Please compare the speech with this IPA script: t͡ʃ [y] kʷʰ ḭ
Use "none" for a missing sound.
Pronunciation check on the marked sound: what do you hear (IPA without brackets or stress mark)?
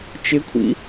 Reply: ɪ